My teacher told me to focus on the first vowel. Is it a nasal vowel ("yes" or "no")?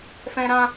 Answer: yes